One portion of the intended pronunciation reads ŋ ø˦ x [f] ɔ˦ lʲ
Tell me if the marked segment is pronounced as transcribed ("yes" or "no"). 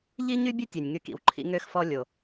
yes